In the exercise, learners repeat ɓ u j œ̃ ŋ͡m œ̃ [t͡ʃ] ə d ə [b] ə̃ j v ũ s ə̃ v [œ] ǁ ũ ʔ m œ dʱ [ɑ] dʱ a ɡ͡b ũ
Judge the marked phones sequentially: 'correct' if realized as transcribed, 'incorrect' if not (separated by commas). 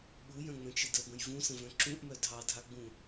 correct, correct, incorrect, correct